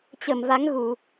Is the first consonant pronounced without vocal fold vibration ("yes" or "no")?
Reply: yes